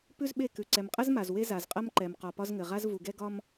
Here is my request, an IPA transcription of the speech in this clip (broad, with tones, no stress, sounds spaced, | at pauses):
p ʉ˦ z ɓ e˦˨ k ʉ˨ ǀ ɛ˨ m qʼ ɐ˦ z m a˨ z w e˦ z a˨ z qʼ ɐ˦ m ǃ ɛ˨ m q ɒ˨ p ɒ˦ z ŋ ɘ˨ ʁ a˦ z v u˨ ɡ ɛ˦ ɡ ɒ˦ m